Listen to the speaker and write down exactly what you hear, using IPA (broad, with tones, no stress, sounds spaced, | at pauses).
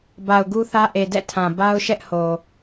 b a˨ ʊ̯ ɡ u˦ θ ä˦ ʔ e˨ d ɛ̰˦˨ tʰ ã˨ b a˦ ʊ̯ ʃ ɛ˦ ʔ h o˨